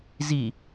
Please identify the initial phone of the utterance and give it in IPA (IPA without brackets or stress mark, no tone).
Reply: z